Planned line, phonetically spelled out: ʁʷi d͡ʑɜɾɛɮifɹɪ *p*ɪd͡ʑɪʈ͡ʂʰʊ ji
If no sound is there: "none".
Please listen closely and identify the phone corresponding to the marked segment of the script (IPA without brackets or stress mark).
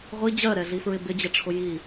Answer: b